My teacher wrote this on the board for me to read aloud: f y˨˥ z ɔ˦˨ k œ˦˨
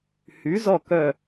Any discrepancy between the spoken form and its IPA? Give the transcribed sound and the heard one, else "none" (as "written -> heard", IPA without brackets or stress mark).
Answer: f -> h